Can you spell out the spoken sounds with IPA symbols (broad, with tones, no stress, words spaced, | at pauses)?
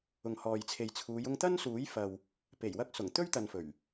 ʊ˨ŋhɔː˨jt͡sʰe˨jt͡sʰuː˨˧j ʊ˧ŋt̪ɐ˥nsuː˨˥jfɐ˨w | pe˨˩jwɐ˧k̚sʊ˨˩ŋ t̪ɵ˥ɥt̪ɐ˨nfɵ˨˩ɥ